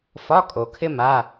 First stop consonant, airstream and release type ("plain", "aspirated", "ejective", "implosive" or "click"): ejective